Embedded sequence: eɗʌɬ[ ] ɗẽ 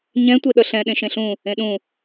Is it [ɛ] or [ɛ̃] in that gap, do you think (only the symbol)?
ɛ̃